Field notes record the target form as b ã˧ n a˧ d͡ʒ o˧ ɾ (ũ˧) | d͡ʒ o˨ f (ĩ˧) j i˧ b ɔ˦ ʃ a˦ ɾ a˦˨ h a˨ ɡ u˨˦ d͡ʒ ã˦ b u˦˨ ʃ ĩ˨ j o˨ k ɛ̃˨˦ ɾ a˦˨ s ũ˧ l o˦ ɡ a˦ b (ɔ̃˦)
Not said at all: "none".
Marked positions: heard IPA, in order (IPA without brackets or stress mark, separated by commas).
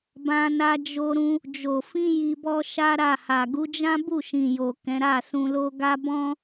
ũ˧, ĩ˧, ɔ̃˦